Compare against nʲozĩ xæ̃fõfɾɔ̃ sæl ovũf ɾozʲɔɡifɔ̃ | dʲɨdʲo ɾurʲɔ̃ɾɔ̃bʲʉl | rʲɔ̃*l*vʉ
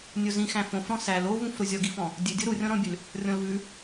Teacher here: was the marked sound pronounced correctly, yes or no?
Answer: yes